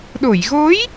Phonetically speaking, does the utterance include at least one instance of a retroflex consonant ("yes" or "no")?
no